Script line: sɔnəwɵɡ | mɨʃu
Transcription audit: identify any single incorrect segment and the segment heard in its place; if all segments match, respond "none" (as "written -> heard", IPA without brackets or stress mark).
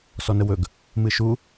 none